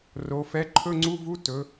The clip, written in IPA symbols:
ro˩˧fɛ˨˥ ǃʰɵ˧˥˧ŋ͡ǀu˧˥˧vu˧˥˧ tɵ˩˧

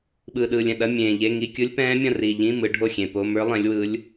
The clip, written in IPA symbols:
ɓɯː˨˩ɗɯː˨˩lʲɛ̃˨˩ ɗɐ˧˥˧ mʲẽː˨˩ʎe˧˥˧ ŋi˧˥˧kʲɯ˦˥lʲ pɛ̃ː˦˥mʲɐ̃˥˨ri˨˩ʎĩ˧˥˧ mɯ˨˦ɖʱo˥˨xʲẽ˨˩po˧˥˧ mə˞˦˥lˠɛ̃˨˦lʲwɯ˨˦lʲ

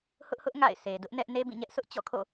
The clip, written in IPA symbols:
hʊ˦ʔhʊ˦ʔ ŋa̰˦˨ɪ̯se˨ dʊ˦ʔnɛ˦ʔ ne˦bĩ˦˨ɲɛ˦ʔsʰʊ˦ʔ t͡ɕɔ̰˦˨kʰo̰˦˨

